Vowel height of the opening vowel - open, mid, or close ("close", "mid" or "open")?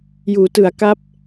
close